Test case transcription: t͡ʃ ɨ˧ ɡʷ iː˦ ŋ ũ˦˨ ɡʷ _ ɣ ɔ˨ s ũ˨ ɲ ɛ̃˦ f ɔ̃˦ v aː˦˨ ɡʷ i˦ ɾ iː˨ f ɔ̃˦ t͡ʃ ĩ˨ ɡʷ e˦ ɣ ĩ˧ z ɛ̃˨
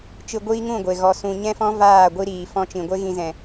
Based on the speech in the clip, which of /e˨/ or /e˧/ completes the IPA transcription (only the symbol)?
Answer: e˨